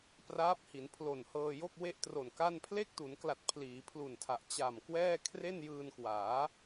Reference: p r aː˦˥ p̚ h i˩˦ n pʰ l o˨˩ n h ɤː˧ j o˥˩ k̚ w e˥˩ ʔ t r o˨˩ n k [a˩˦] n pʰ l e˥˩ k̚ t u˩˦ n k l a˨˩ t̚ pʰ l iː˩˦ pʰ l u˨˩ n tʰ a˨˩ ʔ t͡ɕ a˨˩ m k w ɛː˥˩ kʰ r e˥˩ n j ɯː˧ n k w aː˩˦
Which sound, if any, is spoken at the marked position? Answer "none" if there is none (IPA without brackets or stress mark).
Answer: a˥˩